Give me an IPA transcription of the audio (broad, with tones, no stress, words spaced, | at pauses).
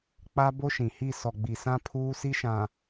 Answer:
k͡pa˦bo˦ʃĩ˨hi˦˨ sɔ˨ɡ͡bi˨sã˦ pʰuː˦si˦ʃã˨